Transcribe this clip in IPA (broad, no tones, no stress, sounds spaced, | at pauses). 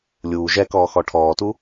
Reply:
lʲ uː ʒ ɛ k ɔː x ɔ ʈʰ ɔː t u